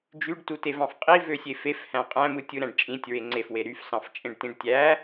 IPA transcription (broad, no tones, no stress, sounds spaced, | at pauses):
d͡ʒ y ɖ t u t e v ɑ̃ f qʼ i v ø sʲ e f e f h æ̃ qʼ æ̃ m ɯ tʲ ɯ ɾ æ̃ ɖ t͡ʃʼ ĩ tʲ ɹ e ŋ͡ǀ e f w e ɾ y f s ɑ̃ f t͡ʃʼ ẽ ɖ t ĩ ɖ tʲ æ